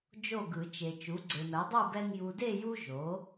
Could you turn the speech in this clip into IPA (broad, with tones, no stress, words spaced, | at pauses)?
d͡ʒo˥˨ ɡɯ˨˩˦t͡ʃe˨ t͡ʃu˩˥ɡ͡ǀe˨mɛ˩˥ dˤu˥˨bɛ˦ŋ ju˨de˥˨ju˦ ʒo˩˥